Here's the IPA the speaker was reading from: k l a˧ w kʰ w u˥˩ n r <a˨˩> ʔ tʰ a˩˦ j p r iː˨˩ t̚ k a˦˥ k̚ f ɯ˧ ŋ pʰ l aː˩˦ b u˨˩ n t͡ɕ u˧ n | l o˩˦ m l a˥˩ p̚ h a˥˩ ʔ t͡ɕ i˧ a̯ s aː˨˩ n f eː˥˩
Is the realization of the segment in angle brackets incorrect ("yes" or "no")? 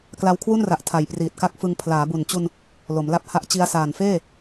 no